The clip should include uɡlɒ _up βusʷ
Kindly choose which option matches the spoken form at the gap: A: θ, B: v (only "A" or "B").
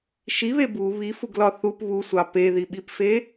A